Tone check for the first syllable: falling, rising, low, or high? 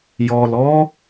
low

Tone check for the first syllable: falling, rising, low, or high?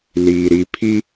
low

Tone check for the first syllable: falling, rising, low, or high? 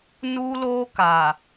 high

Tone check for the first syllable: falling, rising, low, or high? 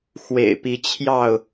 low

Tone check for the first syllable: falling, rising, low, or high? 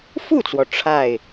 falling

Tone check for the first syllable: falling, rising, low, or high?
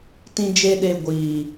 high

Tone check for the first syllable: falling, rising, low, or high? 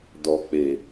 low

